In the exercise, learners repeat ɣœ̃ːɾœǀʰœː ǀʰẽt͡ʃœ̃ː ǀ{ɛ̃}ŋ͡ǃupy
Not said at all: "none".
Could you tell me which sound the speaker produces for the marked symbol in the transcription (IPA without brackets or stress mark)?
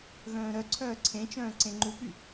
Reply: ẽ